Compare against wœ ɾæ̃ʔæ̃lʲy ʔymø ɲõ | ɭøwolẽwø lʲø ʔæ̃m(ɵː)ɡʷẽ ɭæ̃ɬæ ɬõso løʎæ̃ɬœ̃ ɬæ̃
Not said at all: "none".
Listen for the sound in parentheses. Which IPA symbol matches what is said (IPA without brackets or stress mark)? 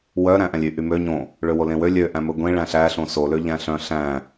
ɵ